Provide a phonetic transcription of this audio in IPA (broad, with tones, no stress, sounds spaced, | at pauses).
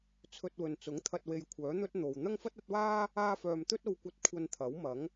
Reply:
t͡sʰ ɵ˧ t̚ w ɵ˨ n t͡s ʊ˨˥ ŋ t̪ʰ ɐ˧ t̚ w e˧ j kʷʰ œː˨˥ n̪ ɵ˥ t̚ n̪ o˨ w n̪ ɐ˥ ŋ f ɐ˥ t̚ ɐ˨˥ t̚ w aː˥ | aː˥ f œː˧ m t̪ ɵ˥ t̚ o˧ w kʷ ɐ˧ t̚ kʷʰ ɐ˧ n t̪ʰ ɐ˨˥ w m ɐ˨˥ ŋ